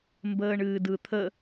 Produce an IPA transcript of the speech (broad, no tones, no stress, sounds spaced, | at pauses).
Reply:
m b əː ɳ ɨː d ɯ t̪ʰ ə